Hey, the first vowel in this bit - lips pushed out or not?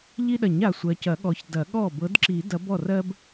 no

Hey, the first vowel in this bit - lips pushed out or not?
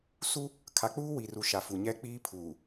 yes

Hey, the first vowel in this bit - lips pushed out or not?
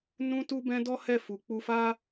yes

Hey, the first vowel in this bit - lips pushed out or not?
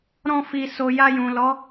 yes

